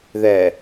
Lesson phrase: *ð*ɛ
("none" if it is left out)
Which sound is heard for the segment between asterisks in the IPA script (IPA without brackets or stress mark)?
ð